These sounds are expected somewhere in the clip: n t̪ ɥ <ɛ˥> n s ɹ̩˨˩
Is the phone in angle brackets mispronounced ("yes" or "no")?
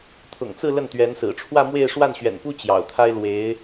yes